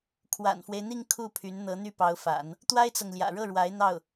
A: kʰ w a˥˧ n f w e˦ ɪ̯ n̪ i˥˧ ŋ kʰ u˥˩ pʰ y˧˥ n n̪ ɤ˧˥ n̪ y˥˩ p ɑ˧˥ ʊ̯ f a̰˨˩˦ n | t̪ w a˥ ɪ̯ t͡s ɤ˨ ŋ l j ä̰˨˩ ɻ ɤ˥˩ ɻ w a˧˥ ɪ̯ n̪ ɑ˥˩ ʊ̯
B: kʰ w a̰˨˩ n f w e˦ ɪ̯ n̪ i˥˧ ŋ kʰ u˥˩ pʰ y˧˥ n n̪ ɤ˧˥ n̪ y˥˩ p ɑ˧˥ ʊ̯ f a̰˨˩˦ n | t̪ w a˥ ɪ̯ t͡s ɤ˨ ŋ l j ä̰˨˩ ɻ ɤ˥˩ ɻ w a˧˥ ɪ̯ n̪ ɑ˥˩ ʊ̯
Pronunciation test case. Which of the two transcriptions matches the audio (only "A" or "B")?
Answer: B